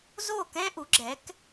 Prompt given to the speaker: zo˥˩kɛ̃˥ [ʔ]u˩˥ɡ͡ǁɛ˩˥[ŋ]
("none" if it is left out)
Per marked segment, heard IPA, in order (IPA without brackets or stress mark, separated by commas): ʔ, k